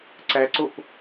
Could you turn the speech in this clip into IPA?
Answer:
ǀæǀop

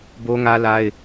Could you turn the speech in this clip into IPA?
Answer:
bo˦ŋä˦la˦ɪ̯

